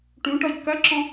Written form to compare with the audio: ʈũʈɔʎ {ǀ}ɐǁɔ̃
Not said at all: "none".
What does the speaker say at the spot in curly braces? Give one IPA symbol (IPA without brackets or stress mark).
k